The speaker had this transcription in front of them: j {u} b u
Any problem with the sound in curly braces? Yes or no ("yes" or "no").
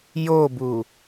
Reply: yes